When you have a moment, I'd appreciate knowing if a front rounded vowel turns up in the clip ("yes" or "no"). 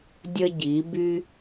yes